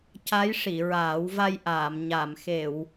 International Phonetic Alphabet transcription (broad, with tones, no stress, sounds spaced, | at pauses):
c a˧˥ j ʂ i˨˩˨ ɹ aː˨˩˦ w v a˧ j ʔ aː˨˩˨ m ɲ a˨˩˨ m x e˨˩˨ w